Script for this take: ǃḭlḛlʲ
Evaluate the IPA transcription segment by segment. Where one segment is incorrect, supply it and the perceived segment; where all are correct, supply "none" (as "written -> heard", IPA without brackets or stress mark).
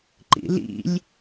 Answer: ḛ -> ḭ